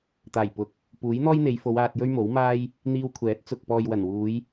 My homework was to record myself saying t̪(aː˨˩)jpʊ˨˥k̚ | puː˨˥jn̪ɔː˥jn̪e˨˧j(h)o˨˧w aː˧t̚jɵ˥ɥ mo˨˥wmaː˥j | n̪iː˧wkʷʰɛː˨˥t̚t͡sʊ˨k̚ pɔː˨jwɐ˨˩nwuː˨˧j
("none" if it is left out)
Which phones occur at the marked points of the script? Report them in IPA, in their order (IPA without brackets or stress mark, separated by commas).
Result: aː˨˩, f